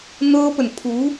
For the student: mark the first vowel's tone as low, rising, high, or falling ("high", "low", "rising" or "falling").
high